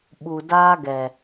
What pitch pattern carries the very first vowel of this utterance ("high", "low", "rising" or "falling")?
low